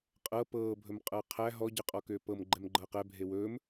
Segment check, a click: present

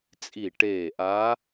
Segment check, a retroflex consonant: present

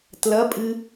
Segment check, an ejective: present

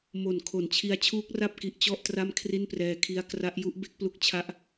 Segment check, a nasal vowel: absent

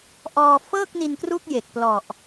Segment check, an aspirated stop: absent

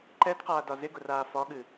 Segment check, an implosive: present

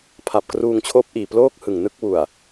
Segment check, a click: absent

